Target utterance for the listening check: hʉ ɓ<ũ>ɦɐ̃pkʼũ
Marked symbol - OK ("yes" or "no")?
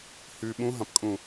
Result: yes